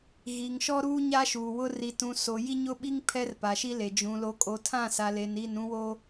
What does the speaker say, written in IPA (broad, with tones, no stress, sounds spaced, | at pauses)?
ɣ iː˨ ŋ ʃ ɔ˦ ɾ uː˦ ɲ a˦ ʃ uː˨ w ʊ˦ r i˨ t ũ˨ s o˨ j i˦ ɲ ʊ˦ ɓ i˦ ŋ pʰ ɛ˦ r p a˨ ʃ i˦ l e˨ d͡ʒ ũ˨ l o˨ kʼ o˨ tʰ ã˦˨ s a˨ l e˨ n i˦˨ n ũ˦ w o˦